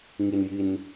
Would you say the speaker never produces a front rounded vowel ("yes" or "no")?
yes